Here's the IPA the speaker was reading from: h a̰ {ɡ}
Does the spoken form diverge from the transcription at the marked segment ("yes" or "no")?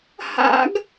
no